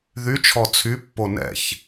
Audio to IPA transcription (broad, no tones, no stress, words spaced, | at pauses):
ðyt͡ʃʰɔ t͡sʰypːo nɛ̰ç